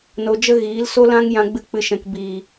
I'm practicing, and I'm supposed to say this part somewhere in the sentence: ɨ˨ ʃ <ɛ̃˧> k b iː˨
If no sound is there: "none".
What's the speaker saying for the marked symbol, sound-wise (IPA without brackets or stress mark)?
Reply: ɛ̃˨